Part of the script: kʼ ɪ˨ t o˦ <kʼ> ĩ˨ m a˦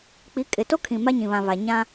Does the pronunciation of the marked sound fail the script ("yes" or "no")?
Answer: yes